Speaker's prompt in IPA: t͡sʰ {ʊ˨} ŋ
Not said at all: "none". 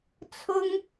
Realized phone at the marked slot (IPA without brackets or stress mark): ʊ˥